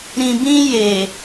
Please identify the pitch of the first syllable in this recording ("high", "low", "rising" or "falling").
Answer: low